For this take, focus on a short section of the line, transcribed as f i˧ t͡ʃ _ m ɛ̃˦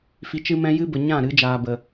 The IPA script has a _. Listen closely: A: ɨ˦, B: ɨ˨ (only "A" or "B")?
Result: A